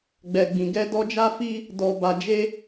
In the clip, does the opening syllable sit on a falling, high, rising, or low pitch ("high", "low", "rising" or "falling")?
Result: low